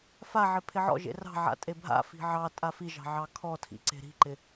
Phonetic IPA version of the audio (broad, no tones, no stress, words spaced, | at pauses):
faʕɪ pʰɪʕɔ̰ʒḛ rɑ̤ʕa̰ tʼebʱa̰fi̤ ʕɑ tʼafiʒɑ̤ ʕɑkʰɔtʰḭ ǀe̤ɾi̤ǃɪ